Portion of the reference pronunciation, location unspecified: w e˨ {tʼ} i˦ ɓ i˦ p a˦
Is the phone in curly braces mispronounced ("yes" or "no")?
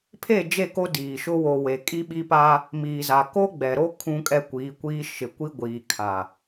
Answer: yes